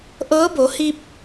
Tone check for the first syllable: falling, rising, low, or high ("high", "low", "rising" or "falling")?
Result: rising